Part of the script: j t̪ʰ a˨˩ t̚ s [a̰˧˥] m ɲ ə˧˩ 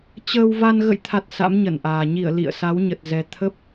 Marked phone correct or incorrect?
correct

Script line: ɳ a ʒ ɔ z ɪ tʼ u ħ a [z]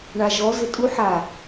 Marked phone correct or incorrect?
incorrect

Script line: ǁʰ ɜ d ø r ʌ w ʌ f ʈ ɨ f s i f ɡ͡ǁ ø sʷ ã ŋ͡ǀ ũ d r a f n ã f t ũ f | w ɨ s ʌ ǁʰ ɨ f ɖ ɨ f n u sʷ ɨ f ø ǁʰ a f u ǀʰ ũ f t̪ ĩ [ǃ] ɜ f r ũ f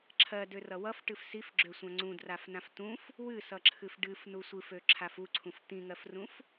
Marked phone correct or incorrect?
incorrect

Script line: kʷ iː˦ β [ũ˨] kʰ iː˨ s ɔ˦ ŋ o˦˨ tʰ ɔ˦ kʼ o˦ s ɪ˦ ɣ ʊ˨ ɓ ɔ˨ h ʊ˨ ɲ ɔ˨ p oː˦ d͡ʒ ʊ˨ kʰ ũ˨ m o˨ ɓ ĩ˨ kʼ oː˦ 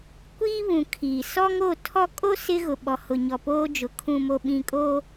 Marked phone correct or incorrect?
correct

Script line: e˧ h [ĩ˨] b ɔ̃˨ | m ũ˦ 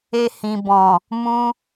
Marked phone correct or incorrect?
correct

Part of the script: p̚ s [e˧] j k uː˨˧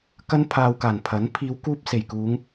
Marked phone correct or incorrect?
incorrect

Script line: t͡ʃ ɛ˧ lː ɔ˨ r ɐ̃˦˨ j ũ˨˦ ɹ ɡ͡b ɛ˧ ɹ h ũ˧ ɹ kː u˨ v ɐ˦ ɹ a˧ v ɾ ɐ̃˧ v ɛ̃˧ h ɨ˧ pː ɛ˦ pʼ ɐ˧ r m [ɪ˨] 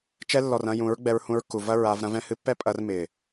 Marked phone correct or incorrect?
correct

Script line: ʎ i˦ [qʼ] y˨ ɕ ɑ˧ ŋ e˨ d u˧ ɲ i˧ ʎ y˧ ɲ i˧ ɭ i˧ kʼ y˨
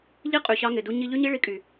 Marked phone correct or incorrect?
correct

